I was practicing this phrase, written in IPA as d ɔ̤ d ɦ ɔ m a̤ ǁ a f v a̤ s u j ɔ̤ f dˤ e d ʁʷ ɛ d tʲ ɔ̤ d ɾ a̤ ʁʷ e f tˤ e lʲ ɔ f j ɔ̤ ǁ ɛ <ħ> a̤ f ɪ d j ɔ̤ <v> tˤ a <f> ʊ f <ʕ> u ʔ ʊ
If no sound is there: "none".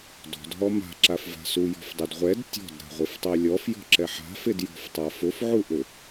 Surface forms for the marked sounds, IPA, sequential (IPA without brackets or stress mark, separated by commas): ħ, f, f, ʕ